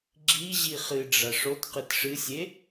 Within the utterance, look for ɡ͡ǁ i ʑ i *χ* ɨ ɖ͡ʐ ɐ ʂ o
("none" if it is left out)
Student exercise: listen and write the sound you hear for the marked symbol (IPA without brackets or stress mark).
χ